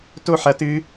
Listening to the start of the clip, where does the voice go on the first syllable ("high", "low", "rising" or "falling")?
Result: falling